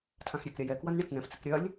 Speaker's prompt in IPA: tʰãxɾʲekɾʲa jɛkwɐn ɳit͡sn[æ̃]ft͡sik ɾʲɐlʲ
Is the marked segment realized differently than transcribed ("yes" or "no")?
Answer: yes